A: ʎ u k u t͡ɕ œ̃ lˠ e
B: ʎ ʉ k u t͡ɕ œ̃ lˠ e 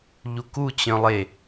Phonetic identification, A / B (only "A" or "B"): A